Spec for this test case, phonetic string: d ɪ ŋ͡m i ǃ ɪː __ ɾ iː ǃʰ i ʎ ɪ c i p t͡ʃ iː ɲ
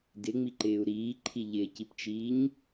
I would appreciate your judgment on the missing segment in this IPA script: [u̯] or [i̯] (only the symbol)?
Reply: u̯